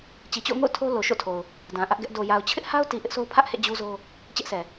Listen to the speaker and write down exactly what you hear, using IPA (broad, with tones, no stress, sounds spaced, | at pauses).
t͡ɕ i˨ t͡ɕ o̰˦˨ ʊ̯ ŋ o̰˦˨ ʊ̯ tʰ o˦ l o˨ ʃ o̰˦˨ tʰ o˨ ʊ̯ | d ã˨ ʔ ä˦ ʔ ɡ ɛ˦ ʔ d o˨ j a˨ ʊ̯ t͡ɕʰ ɪ˦ ʔ h a˦ ʊ̯ t i˨ ʔ ɪ˦ ʔ s o˦ ʊ̯ pʰ ä˦ ʔ h ḛ˦˨ d͡ʑ u˦ z o˦ | t͡ɕ ɛ˦ ʔ s ɛ˨